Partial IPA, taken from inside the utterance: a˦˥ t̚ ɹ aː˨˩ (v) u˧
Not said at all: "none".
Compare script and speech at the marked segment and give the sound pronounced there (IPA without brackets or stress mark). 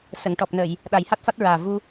v